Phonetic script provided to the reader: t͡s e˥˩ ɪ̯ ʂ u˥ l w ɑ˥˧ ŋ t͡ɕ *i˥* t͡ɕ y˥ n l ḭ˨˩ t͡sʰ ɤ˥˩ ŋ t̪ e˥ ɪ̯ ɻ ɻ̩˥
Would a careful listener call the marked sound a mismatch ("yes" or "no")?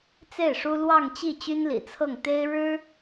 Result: yes